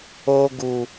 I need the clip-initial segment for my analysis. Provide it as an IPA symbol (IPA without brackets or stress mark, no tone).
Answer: o